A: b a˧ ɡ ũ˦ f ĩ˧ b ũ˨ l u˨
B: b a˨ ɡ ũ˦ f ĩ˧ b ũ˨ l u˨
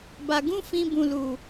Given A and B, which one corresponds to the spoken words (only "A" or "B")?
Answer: A